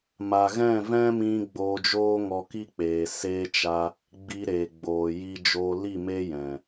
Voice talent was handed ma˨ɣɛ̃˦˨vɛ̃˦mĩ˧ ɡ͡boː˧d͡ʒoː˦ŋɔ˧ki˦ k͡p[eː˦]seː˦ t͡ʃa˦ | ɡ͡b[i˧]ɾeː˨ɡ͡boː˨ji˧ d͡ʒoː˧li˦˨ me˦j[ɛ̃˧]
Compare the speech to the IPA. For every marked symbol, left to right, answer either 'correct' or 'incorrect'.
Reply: incorrect: eː˨, correct, incorrect: ɛ̃˨

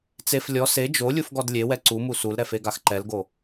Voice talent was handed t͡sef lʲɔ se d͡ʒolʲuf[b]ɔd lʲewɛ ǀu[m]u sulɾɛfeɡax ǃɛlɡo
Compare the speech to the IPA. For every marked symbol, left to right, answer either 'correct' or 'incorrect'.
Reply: incorrect: ɡ, correct

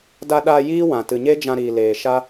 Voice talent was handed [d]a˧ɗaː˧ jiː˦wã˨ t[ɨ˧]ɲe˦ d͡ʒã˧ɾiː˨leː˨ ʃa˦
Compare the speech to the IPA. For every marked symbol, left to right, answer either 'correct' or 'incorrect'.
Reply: correct, incorrect: ɨ˨

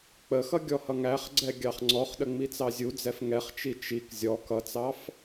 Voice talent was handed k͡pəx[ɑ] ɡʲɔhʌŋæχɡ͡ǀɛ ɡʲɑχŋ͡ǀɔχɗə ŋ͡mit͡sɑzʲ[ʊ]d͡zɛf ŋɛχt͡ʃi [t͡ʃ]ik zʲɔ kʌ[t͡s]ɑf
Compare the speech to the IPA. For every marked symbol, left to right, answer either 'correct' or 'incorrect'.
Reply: incorrect: ʌ, incorrect: u, correct, correct

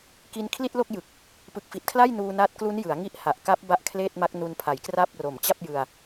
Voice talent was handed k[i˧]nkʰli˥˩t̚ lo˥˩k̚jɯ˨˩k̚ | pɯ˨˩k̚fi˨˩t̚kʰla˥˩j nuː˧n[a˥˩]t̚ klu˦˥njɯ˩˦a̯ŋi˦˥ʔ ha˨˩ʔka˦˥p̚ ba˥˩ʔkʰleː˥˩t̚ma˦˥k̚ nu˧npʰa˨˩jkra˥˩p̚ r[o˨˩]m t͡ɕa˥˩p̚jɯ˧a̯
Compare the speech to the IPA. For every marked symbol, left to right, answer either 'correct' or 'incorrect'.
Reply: correct, incorrect: a˦˥, correct

